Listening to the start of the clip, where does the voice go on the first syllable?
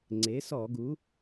rising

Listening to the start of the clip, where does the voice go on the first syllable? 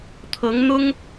rising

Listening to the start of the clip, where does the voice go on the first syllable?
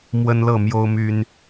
high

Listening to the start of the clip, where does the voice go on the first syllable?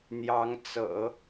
rising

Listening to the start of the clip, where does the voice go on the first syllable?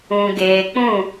low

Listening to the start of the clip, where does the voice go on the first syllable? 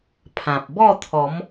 low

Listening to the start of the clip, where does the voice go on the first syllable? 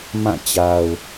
falling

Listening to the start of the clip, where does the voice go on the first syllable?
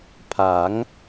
rising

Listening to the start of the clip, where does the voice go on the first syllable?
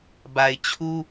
low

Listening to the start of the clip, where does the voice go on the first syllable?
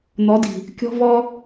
rising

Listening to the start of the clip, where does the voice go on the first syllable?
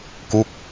falling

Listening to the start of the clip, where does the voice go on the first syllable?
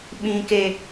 high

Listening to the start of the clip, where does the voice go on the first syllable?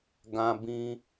high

